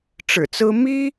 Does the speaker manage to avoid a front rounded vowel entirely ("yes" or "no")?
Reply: yes